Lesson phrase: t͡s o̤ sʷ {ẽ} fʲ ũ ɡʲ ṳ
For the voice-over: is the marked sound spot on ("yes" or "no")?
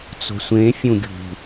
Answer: yes